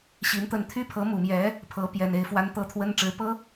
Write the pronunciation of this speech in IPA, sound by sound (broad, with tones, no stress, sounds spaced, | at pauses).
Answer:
ɕ i˧˥ n t̪ ə˥˩ n t̪ʰ y˥ pʰ ɤ˧˥ m u˨˩ m j ɛ˧˥ | pʰ ɤ˧˥ p j ɛ˨˩ n e˥˩ ɪ̯ f w a˥ n t̪ ɤ˥˩ t̪ʰ w ə˥ n ʈ͡ʂ ɻ̩˧˥ p ɤ˥